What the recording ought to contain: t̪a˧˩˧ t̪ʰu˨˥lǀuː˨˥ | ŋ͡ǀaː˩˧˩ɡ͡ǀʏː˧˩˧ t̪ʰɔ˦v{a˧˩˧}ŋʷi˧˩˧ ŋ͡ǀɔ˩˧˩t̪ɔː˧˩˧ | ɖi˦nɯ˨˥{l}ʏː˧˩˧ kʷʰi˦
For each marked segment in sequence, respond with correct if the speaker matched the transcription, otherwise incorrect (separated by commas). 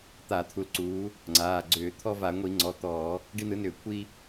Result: correct, incorrect